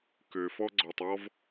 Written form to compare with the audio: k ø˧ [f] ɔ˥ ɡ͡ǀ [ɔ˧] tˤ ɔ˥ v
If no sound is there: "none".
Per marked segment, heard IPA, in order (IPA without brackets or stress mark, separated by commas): f, ɔ˧